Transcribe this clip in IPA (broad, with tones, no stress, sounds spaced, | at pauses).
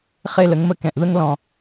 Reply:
χ e˦˨ l ə˦ ŋ m ə˦ k ɛ̃˨ ʔ ð ə˦ ŋ l ɔ̃˨